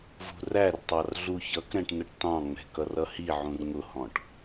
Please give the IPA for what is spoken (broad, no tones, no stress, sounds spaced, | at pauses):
v ṳ r æ r tˤ ɑ r ɮ u ç ʌ k ɾ ɛ̃ ʈ n ə ʈ t ɑ̃ ŋ͡m ɛ̤ k ʌ r ʌ h i ʕ ũ r ŋ ʊ h ɔ̃ ʈ